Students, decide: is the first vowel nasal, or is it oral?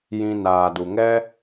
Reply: nasal